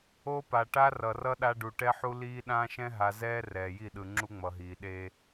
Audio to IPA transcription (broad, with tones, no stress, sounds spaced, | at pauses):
o˦ p a˨ ʈ a˦ r ʌ˨ r ʌ˦ ɗ a˦ ɖ u˨ ʈ ɛ˦ ħ u˦ l iː˦ ɗ ãː˦ ʃ ɛ̃˦ ɦ a˨ z ɛː˦ r ɛː˨ j i˦˨ ɗ ɯ˨ ŋ͡ǁ u˦ ŋ͡m ʌ˨ ɦ iː˨ ɗ e˦